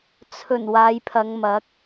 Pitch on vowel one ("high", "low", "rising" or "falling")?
low